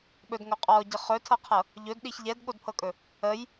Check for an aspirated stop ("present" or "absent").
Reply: present